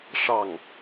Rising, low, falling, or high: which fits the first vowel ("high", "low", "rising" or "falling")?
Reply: falling